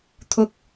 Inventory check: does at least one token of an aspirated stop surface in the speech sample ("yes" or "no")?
yes